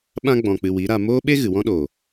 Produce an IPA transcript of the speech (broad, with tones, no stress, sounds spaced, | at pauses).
ɓ ã˦ ɡ͡b ɔ̃˧ k͡p ɨ˧ w i˨˦ ɾ a˧ m oː˦ ɓ e˦ ɣ ɨ˨ w ɔ̃˦ ɗ oː˨